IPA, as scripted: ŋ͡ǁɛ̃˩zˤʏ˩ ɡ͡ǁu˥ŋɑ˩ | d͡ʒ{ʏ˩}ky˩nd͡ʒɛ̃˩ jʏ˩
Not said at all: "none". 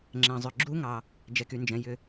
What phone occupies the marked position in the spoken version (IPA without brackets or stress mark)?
ɛ˩